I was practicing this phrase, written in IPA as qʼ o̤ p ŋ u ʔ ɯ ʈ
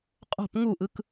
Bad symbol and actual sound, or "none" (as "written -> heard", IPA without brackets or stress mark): ʈ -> k